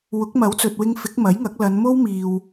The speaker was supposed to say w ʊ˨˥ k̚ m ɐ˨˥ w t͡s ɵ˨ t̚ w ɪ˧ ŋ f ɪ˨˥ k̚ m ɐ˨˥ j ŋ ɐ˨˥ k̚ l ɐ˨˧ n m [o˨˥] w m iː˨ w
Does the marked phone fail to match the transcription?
yes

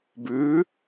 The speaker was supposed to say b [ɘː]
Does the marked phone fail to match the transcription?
yes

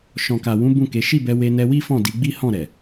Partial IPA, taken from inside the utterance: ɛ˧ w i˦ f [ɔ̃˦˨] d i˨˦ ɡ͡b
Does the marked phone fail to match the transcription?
no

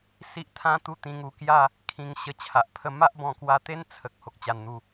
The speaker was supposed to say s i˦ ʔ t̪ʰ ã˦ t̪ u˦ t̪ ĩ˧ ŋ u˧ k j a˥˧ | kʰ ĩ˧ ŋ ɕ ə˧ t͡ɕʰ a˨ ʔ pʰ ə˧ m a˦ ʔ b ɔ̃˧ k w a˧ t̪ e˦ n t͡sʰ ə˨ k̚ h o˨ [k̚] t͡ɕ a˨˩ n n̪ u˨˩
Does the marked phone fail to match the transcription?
no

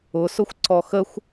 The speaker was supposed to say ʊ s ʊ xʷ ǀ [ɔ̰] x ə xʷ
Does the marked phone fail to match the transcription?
yes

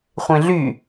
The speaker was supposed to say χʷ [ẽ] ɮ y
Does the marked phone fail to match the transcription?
no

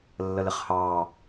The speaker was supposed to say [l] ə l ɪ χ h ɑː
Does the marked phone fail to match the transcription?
yes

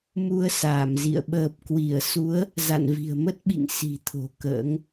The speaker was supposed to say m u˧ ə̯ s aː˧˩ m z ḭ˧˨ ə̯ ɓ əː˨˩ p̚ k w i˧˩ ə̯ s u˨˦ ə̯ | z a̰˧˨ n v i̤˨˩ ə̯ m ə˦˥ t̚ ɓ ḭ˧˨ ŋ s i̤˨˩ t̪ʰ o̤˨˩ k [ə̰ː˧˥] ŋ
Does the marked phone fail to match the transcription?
no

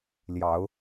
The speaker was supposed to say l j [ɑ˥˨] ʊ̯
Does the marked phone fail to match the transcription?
yes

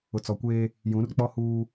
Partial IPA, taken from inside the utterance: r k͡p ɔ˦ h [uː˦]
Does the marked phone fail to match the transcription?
no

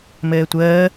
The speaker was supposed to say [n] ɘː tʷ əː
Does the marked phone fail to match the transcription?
yes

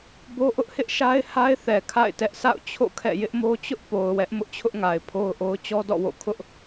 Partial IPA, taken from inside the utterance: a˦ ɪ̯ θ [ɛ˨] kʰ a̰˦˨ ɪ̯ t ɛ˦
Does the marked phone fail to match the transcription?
no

